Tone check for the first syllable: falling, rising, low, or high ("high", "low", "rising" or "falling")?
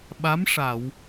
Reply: rising